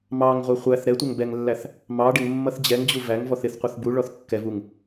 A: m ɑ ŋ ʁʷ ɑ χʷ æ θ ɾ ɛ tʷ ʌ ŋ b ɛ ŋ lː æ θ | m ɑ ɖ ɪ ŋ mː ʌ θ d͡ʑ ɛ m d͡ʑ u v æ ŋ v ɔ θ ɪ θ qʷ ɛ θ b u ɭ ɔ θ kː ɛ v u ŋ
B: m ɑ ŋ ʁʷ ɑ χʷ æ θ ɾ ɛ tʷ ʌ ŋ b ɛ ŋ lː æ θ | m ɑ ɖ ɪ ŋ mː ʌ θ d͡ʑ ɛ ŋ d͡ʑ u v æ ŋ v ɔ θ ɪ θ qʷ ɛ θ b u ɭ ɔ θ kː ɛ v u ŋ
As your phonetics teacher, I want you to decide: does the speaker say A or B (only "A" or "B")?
B